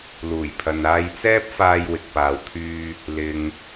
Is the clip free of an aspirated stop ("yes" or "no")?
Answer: no